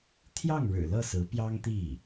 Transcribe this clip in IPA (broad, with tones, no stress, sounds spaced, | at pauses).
t̪ʰ j ɑ˥˩ ŋ ɻ ɻ̩˨˩ l ɤ˥˩ s ɹ̩˧˥ p j ɑ˥ ŋ t̪ i˥˩